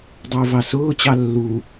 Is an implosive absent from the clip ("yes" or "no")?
yes